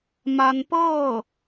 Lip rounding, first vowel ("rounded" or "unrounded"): unrounded